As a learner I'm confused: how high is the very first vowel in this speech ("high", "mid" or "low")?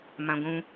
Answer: low